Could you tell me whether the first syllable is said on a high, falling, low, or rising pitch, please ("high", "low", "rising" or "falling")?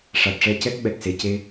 low